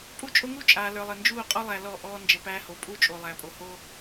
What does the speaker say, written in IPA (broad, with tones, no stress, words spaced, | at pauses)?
pʼu˦t͡ʃʼo˦ ŋu˦t͡ʃʼaː˨lə˞˨lˠə˨ nd͡ʒuː˦˨qʼɔ˦ lˠæ˨ lɔ˦˨ʔɔː˦ nd͡ʒə˨pæː˦ ho˨pʼu˦t͡ʃʼo˨ lˠæ˨pʼo˨ ho˦